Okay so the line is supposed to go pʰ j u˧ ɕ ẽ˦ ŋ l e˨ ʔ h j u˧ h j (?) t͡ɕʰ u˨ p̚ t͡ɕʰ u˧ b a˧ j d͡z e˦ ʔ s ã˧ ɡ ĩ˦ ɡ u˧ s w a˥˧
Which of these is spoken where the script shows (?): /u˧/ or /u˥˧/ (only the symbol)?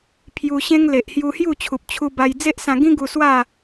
u˥˧